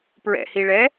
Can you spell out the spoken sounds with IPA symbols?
pɹɛ̰hiɭɛː

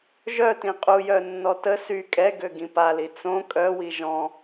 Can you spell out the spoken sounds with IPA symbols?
ʒœtĩ qʼujœ nːɔtə sy kʼɛɡøɡĩ pali t͡sõ kʼœwi ʒɔ̃

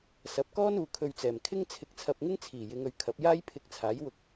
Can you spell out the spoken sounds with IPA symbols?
sɐ˨˥p̚kɔː˥n uː˨˧kʰɵ˧ɥt͡sɛː˨˩m kʰɪ˥ŋt͡sʰɪ˧k̚t͡sʰɐ˧p̚ŋɪ˥ŋ t͡sʰiː˨˩jɪ˨˧ŋɵ˨ɥ kʰɐ˨˥p̚jaː˥j pʰɪ˧k̚t͡sʰaː˨˥jwʊ˧k̚

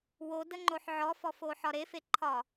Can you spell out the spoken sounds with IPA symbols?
wodəŋ͡ǃoħ ʕɔfɔfoħɒ ɾefeǃʰɒ

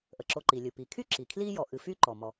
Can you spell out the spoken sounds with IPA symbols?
ʔə˩ǁo˨ǃi˩lʲɨ˩ pi˩kʰy˥ ǁi˩kʰli˥jɔ˨ ʔɨ˨fy˥ǃɔ˩ mɔ˩

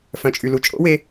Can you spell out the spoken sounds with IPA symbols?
fœ̃˨t͡ʃʼy˨lu˨ t͡ʃʼo̰˦we˧

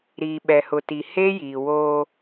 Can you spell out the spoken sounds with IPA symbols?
ɾiː˨ɓɛ˨hʊ˨ti˨ he˦ jiː˨woː˦

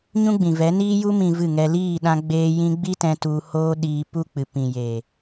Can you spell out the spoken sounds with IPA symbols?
ɲũ˦ɡ͡bĩ˨vɛ˨˦ niː˧ju˧mĩ˨ vɨ˦˨ŋɛ˧ liː˦˨ɗã˧ɡ͡beː˧ jĩ˧ɡ͡bi˦tɛ̃˧ tu˧hoː˦ɗiː˧ pu˦k͡pɨ˨pĩ˨ jeː˨

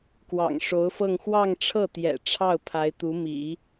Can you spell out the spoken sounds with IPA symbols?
kwɑ̰˨˩ŋʂo˧˥ʊ̯fɤ˥˧ŋ xwɑ˥˧ŋʈ͡ʂʰɤ˥˩ t̪jɛ̰˨˩ʈ͡ʂʰɑ˥˩ʊ̯ pʰa˧˥ɪ̯t̪u˧˥ mḭ˨˩˦

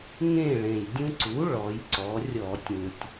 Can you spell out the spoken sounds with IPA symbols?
ŋẽ˥˨ɭẽ˩j dʲũ˦ǀu˩˥ ɭɔ˩˧jǀɔ˩˧rʲɔ˧˩˧ tʲũ˩tʲ

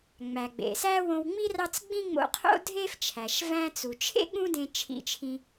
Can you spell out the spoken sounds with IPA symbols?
ŋ͡mæ˩ɡ͡bḛ˩sæ˥ wõ˧wŋ͡mi˥ rɑ˥t͡s ɡ͡bĩ˥ŋ͡mo̰˧qʰo̰˥ dʱe˥ft͡ʃʰæ˩ʃ væ̃˧t͡su˩t͡ʃʰḛ˥ ɠũ˥dẽ˧ t͡ʃʰḭ˧t͡ʃʰĩ˧

